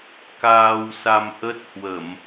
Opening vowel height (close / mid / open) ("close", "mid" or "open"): open